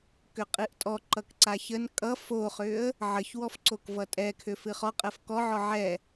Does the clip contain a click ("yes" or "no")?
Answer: yes